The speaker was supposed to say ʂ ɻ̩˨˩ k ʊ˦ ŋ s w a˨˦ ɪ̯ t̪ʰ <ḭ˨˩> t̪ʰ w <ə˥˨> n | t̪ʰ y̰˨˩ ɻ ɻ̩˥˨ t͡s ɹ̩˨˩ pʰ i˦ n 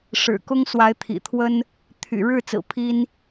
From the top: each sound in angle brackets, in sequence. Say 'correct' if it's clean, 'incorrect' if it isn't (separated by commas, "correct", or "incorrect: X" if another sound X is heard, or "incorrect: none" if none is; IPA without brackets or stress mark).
correct, incorrect: ə˦